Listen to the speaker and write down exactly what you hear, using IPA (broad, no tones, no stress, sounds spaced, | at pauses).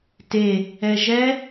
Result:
t e | ɛ ʒ ɛ